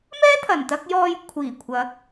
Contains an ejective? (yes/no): no